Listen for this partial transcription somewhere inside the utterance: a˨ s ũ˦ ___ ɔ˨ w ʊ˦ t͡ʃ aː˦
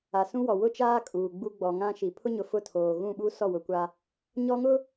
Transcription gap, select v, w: w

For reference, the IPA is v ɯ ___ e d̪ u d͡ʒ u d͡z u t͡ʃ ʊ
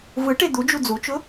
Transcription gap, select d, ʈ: ʈ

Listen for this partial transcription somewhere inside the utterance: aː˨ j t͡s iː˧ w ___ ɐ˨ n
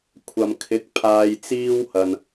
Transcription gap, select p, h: h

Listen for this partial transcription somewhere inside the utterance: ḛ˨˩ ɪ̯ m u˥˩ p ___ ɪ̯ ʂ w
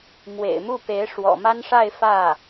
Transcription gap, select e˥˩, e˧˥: e˧˥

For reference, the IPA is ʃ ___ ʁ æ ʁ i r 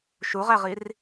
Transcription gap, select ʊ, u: u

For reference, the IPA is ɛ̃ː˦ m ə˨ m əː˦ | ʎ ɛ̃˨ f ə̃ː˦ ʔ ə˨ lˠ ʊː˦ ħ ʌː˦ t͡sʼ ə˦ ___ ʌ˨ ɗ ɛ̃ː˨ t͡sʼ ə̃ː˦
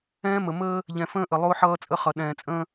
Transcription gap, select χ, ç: χ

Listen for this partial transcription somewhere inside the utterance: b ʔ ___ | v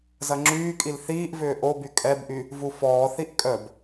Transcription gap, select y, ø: y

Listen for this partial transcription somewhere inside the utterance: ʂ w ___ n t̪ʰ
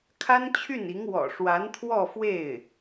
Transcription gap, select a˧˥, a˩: a˧˥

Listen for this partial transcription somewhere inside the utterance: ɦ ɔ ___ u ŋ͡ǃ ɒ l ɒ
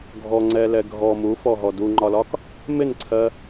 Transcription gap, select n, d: d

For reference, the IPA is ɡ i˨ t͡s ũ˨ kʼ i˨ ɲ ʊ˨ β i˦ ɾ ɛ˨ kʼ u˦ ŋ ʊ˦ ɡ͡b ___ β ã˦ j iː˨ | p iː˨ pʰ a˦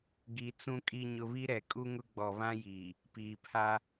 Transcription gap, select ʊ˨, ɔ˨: ɔ˨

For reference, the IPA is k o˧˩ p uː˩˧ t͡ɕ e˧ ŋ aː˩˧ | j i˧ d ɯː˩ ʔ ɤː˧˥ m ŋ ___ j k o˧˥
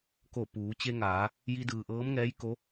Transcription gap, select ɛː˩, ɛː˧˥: ɛː˧˥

